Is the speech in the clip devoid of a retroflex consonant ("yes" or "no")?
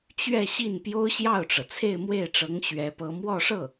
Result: no